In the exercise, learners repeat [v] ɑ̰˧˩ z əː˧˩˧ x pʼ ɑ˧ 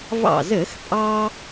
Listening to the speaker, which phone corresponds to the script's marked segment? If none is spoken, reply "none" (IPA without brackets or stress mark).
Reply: v